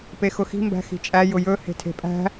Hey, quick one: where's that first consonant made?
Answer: lips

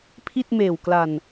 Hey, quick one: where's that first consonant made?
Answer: lips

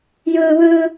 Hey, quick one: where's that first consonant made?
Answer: palate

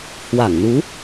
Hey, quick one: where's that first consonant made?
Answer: throat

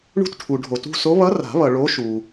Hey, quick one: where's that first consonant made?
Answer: retroflex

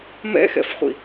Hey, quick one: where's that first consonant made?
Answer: lips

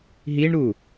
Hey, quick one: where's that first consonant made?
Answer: throat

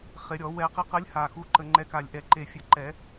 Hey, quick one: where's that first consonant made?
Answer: uvula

